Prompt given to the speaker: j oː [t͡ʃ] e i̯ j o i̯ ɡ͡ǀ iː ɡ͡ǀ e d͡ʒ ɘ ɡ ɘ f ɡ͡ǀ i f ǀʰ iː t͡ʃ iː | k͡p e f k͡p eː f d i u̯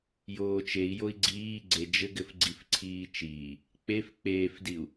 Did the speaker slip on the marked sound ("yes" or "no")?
no